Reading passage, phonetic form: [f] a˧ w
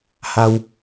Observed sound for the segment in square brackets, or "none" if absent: h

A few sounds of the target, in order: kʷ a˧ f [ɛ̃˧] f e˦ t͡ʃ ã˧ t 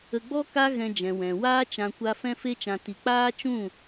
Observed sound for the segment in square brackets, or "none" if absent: ɛ̃˦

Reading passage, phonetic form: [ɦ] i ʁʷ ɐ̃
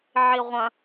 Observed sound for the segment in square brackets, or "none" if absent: ʕ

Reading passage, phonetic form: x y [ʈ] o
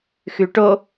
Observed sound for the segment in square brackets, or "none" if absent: ʈ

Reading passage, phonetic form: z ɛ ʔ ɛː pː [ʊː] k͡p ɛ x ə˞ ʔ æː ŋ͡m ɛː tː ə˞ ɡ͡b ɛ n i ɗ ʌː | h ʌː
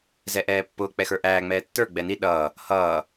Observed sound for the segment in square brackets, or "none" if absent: ʊː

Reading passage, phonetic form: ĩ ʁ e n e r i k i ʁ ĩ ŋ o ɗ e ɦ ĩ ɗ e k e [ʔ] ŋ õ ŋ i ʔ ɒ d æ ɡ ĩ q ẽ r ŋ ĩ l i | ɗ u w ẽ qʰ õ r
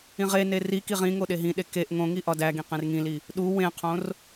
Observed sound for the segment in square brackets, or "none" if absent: ʔ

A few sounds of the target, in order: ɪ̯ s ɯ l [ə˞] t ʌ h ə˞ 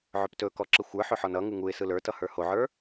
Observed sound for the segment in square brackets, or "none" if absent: ə˞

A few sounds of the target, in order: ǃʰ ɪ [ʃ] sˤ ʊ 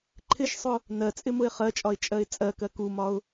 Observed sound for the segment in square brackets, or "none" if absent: ʃ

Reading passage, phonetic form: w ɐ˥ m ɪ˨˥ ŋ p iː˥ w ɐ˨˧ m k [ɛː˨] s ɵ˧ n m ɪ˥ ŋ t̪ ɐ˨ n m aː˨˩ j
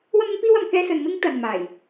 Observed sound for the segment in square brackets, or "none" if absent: ɛː˥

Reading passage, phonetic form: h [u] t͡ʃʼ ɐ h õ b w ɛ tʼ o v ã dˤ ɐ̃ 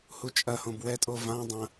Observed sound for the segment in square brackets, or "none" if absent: u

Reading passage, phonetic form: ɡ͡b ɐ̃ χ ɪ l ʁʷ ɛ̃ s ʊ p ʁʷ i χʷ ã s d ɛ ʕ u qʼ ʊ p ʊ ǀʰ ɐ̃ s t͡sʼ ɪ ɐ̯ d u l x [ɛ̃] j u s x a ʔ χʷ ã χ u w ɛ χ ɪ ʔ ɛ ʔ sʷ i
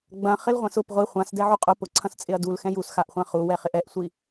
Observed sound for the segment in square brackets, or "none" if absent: ɛ̃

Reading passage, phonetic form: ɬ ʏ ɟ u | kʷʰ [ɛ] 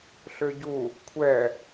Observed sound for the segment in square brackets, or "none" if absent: ɛ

